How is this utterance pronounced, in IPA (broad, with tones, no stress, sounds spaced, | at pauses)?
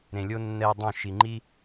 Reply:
ɾ ẽ˨ lʲ o˦ nː ɛ˧ dˤ õ˦˨ ʃ i˨ ŋ͡ǃ i˦